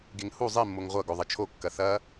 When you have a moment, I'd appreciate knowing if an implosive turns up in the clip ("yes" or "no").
no